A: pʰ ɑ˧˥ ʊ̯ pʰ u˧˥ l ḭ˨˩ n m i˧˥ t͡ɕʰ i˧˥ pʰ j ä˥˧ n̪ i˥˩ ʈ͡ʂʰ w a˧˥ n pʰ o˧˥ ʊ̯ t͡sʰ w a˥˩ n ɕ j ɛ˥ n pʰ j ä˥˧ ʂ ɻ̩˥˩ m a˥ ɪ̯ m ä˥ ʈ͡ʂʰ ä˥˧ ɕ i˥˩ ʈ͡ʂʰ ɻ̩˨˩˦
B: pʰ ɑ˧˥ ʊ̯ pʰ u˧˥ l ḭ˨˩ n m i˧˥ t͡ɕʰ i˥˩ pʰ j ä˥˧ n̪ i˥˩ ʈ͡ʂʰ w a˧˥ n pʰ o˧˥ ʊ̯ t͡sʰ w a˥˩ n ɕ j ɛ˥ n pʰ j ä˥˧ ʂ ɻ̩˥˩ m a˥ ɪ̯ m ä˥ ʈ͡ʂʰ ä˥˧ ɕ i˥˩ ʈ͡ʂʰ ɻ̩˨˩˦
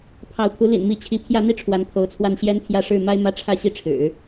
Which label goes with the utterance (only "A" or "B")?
A